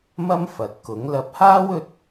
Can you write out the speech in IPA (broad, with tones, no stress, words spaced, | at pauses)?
mɐ˥m fɐ˨t̚kʊ˨˥ŋ lɐ˨˥p̚haː˥w ɵ˥t̚